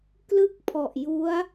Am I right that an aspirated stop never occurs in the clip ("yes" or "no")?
no